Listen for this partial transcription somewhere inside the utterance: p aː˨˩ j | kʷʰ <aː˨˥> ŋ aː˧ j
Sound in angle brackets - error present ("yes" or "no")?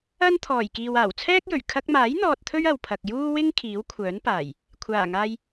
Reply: yes